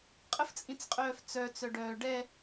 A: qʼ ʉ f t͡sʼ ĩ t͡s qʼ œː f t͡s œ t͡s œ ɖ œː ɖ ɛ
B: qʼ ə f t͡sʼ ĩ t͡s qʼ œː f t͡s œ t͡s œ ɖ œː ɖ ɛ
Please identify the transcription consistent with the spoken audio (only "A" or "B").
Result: B